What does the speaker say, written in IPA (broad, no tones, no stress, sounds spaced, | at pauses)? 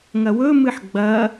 ŋ ɐ w ɵ m ɨ ħ ɡ͡b ɐ